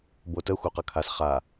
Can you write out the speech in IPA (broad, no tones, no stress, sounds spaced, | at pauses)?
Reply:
b o t ə xʷ œ q ɐ kʰ a s χ a